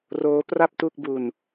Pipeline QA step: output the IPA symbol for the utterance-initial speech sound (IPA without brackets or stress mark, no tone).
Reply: r